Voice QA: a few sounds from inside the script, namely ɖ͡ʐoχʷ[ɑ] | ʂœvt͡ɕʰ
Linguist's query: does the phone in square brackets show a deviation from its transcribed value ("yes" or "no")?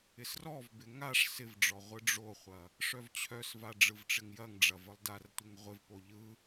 yes